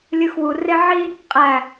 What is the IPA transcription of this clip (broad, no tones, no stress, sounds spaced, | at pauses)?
lʲ ɯ x w u r e ʕ i | qʼ æ